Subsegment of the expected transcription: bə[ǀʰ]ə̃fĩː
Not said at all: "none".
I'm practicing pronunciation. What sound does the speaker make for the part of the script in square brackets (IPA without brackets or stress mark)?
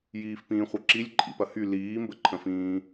ǃʰ